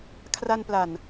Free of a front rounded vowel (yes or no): yes